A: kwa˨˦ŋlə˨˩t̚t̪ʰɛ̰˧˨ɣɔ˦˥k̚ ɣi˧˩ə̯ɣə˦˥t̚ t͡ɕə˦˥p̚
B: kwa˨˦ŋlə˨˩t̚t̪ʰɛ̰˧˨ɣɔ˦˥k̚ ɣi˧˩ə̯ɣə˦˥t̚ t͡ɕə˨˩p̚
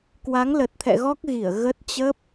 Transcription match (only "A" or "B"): A